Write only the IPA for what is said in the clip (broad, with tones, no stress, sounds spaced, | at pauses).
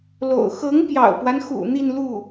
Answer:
l o̰˨˩ ʊ̯ x ɤ˧˥ ŋ p j ɑ̰˨˩ ʊ̯ p w a˦ n x ṵ˨˩ n̪ i˥˧ n l u˥˩